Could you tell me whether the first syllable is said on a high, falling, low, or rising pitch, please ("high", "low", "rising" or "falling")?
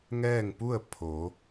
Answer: falling